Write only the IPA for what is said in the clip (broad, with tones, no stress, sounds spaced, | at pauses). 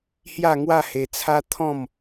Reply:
h j a˥˧ ŋ w a˥˧ h e˧ t͡sʰ a˦ t̪ʰ ɔ̃˥˧ m